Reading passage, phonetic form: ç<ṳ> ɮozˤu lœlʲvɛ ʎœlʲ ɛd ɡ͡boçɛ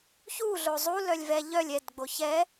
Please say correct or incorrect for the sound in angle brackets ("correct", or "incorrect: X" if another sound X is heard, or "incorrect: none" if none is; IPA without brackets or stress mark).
incorrect: u